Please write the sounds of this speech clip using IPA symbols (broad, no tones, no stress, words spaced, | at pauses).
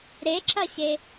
ɾeǁɐɕe